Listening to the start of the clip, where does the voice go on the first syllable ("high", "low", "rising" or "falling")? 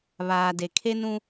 low